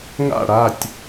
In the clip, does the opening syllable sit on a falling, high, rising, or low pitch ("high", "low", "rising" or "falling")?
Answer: falling